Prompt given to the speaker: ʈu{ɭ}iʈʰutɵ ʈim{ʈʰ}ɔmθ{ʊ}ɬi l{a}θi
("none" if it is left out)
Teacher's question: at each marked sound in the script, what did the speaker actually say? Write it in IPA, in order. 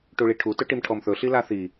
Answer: ɭ, ʈʰ, ɵ, a

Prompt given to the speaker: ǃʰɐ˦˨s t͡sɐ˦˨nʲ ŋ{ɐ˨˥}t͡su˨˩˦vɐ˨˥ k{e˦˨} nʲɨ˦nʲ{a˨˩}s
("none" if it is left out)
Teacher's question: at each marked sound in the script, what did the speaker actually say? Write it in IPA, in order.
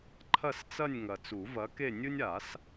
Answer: ɐ˨˩, e˦˨, a˨˩˦

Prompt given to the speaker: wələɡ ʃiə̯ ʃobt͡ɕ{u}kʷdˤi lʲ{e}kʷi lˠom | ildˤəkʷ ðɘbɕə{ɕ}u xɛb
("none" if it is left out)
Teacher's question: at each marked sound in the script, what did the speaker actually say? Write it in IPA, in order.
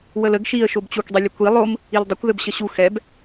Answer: u, ɛ, ɕ

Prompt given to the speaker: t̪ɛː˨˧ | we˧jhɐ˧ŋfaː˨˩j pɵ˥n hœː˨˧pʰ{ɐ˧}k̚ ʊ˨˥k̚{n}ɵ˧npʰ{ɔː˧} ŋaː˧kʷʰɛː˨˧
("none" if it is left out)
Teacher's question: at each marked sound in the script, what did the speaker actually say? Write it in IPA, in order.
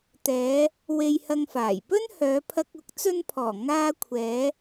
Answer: ɐ˧, t͡s, ɔː˨˩

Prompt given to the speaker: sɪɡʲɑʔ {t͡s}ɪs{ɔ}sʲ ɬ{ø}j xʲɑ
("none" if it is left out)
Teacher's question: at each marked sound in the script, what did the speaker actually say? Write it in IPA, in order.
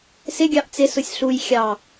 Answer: t͡s, ʊ, u

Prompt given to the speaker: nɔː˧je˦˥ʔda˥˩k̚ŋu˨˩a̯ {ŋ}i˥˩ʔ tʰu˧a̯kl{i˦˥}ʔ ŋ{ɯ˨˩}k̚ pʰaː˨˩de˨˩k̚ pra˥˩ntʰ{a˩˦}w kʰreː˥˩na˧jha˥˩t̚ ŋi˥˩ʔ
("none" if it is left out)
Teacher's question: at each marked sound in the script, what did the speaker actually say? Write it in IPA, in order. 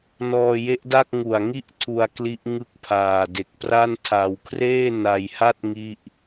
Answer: ŋ, i˦˥, ɯ˦˥, a˧

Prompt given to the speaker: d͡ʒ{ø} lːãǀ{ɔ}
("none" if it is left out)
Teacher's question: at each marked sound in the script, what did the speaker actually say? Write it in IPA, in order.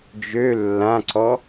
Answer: ø, ɔ

